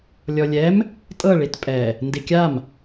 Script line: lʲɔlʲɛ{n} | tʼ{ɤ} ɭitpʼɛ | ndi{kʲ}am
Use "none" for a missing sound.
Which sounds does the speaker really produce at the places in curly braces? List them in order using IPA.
m, ɤ, kʲ

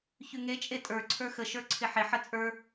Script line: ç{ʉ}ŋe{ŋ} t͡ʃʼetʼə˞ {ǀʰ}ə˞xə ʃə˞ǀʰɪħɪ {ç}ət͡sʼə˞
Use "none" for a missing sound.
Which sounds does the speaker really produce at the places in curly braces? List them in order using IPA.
ʉ, none, ǀʰ, ħ

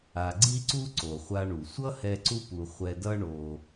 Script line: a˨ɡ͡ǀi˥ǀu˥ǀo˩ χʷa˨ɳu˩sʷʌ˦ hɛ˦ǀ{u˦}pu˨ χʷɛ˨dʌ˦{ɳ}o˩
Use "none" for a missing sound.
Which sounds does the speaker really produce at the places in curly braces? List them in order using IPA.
u˥, ɳ

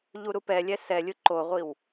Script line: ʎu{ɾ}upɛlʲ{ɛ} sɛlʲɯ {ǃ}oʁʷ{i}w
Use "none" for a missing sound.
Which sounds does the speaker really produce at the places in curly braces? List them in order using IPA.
ɾ, ɛ, ǃ, i

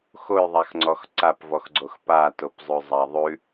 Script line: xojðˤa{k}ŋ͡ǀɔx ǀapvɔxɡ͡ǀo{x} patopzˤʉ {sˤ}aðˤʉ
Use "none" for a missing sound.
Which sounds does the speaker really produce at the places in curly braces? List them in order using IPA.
x, x, zˤ

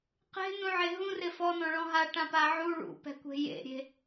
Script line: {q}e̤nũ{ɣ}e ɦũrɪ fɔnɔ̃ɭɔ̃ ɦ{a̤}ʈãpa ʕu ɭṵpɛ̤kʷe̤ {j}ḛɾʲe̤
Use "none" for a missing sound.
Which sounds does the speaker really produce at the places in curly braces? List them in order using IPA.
q, ʕ, a, j

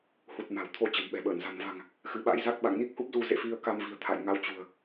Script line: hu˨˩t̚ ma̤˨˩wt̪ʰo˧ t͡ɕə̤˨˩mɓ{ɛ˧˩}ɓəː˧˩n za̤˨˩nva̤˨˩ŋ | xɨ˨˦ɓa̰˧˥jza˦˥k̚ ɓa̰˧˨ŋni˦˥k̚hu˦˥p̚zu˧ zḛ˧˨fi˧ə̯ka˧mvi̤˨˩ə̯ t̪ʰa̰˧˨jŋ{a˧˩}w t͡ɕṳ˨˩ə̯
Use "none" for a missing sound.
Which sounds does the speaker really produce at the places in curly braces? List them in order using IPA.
ɛ̤˨˩, a˧

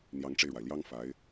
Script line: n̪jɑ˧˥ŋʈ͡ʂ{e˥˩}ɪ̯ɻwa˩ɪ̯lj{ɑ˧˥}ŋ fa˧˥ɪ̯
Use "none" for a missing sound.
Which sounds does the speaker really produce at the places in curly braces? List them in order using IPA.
e˧, ɑ˥

